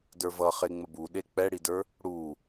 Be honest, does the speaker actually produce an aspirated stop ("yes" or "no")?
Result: no